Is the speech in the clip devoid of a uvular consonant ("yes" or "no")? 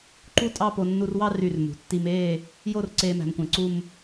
yes